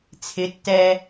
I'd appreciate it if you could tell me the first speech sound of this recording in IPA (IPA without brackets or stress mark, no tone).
t͡sʰ